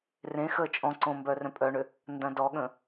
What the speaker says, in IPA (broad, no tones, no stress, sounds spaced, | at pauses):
r ẽ x əː t͡ʃʼ ɔ̃ ǀ õ m b œ r œ̃ pʼ œ ɳ ʏ | n d ɐ̃ d ɔ ɠ ə̃